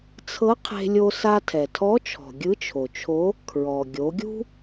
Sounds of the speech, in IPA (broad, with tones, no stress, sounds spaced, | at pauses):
t͡sʰ ɤ˧˥ qʰ e̤˧ lʲ o˧ s a˧ tʰ ɛ˩ tʰ ɔ˧˥ t͡ʃʰ ɔ̤˩ ɡʲ ɯ˧˥ t͡ʃʰ o˩ t͡ʃʰ o˧˥ | kʰ ɹ ɔ˩ ɡʲ o˩˧ ɡʲ ṳ˥